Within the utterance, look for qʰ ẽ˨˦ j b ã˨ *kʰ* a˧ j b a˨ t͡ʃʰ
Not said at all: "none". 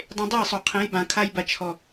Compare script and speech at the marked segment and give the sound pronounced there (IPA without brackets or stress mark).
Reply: kʰ